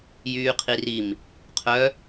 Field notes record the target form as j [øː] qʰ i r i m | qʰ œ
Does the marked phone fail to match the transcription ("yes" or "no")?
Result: yes